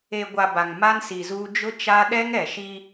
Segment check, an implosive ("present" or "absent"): present